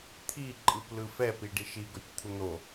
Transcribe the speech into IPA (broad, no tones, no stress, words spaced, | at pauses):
t̪ʰiǃʼɯp lɯfɛpiɖi ʃiɡotʲ t̪ʰun̪o